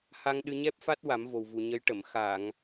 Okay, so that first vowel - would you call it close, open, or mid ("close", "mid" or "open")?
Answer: open